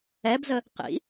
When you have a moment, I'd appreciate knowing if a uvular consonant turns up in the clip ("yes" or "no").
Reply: yes